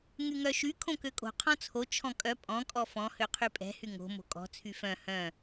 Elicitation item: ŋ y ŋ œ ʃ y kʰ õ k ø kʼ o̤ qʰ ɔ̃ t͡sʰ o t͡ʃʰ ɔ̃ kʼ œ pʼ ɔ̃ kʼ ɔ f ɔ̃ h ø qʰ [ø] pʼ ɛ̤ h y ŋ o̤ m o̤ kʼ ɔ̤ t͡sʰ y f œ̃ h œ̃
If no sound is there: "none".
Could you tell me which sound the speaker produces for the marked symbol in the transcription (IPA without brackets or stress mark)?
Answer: y